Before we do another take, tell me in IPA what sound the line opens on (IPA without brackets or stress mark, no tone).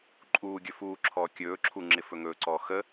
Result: ǃʼ